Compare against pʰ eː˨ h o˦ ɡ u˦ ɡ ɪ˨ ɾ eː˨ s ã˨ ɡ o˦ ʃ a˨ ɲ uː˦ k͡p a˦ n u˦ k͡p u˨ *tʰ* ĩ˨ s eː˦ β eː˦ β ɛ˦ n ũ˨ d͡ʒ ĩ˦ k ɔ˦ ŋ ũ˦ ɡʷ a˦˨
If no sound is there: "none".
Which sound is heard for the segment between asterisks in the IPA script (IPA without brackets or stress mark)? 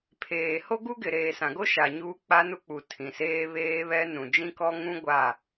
tʰ